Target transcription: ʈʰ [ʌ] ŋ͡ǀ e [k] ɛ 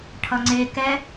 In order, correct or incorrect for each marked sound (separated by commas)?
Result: correct, correct